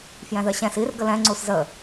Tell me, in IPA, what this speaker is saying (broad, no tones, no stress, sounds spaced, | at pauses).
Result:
f j ɛ̃ ð ɜ ɕ ɛ̃ s i r ɡ ə l ɛ̃ ŋ͡ǀ u s z ə